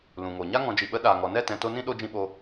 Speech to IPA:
lũ˨ŋo˨ɲa˦ ŋɔ̃˨d͡ʒi˨ɓə˨˦ ɗaː˨ŋɔ˨ nɛ˦˨tɛ̃˨to˧ nĩ˦ ɗo˧d͡ʒĩ˧ɓo˧

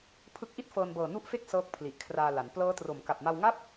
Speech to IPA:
pʰɯ˦˥k̚ʔi˥˩t̚fɤː˧nbɤː˨˩ nu˦˥ʔfe˦˥k̚ sɤː˦˥k̚pʰli˨˩ʔkʰraː˧ la˩˦n plɤː˦˥tro˨˩m ka˨˩p̚ma˧wŋa˥˩p̚

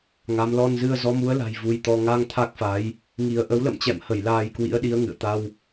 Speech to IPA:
ŋa˨˦m lɔ˧nzɨ˧ə̯ zɔ˨˦mu˨˦ə̯la̤˨˩j vu˧jt̪ɔ˧ ŋa˧ŋ t̪ʰa˦˥k̚fa˨˦j | ŋi˧ə̯ ʔə˨˦wlə̰˧˨mt͡ɕɛ̰˧˨mhə˧˩j laː˧jkwḭ˧˥ə̯ɗi˨˦ə̯ ŋɨ̰˧˨ə̯t̪a˧w

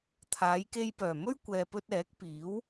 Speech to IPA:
t̪ʰaː˨˧jke˧jpœː˨˩ mɵ˥ɥkʷɛː˨pɵ˧t̚ ɛː˨˥k̚ piː˨˥w

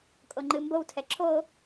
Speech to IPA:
kʼoŋ͡ǃɨmbowtʰɛ ǁʰo

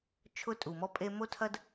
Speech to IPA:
t͡ʃʰʊ˧tʼu˨mɔ˧ pʼe˧mo˦tʰɐ˦d

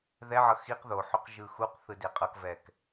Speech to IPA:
ðɛʕʌ xiq ðoħoq ʒɯxuqθɯ deqʼʌkvɛk

